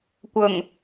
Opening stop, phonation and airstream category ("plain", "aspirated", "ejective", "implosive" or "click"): plain